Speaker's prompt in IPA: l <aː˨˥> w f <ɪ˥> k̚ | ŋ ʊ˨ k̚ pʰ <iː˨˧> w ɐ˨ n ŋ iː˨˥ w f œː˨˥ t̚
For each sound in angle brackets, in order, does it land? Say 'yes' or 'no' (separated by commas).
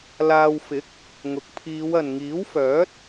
no, no, yes